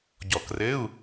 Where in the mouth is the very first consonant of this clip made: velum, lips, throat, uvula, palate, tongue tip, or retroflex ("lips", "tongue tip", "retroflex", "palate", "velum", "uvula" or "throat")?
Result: palate